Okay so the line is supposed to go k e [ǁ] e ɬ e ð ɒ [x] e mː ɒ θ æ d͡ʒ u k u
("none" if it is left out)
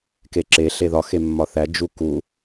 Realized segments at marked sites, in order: ǁ, x

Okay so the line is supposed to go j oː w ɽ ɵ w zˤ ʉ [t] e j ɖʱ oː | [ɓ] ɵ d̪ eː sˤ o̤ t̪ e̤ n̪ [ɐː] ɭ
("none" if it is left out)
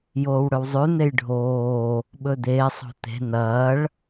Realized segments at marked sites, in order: n̪, ɓ, ɐː

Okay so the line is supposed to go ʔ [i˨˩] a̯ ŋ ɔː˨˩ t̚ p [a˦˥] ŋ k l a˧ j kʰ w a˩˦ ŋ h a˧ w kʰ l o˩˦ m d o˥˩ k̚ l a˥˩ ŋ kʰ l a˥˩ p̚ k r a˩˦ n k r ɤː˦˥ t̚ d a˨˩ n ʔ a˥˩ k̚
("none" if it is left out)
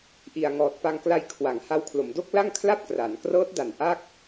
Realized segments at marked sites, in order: i˨˩, a˧

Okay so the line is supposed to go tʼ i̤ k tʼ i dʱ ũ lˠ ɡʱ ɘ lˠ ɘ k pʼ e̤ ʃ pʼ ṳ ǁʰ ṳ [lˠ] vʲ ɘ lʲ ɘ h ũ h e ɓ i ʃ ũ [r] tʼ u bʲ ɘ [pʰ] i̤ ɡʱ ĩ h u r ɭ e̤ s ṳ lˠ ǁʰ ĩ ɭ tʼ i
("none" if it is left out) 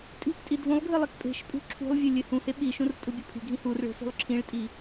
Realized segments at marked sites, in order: lˠ, r, pʰ

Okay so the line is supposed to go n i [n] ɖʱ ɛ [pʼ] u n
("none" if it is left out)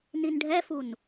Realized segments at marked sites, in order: n, f

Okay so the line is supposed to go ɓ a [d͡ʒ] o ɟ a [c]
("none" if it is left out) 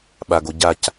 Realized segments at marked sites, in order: ɡ, c

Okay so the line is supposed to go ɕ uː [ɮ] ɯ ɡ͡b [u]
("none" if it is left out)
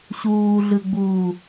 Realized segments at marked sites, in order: ɮ, uː

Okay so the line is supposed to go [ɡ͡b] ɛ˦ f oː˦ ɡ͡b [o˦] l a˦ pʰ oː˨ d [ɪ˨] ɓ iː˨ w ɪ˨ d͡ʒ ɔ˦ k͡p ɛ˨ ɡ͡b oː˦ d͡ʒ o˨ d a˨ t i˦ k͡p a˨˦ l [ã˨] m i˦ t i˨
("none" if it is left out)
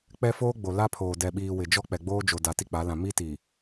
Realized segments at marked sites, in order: k͡p, o˨, ɛ˨, ã˨

